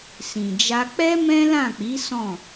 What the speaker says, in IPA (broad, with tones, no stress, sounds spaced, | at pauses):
s ĩ˨ d͡ʒ a˧ k͡p ɛ˦ m ɛ̃˦ l ã˦˨ k͡p i˨˦ s ɔ̃˦˨